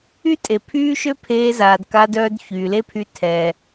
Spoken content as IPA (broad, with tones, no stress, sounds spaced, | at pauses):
y˦ tʼ e˨ pʰ yː˦ ʃ ø˦ pʰ eː˧ z aː˨ d k a˧ d œː˧ d ç yː˨ l e˦ pʰ y˧ tʰ ɛ˨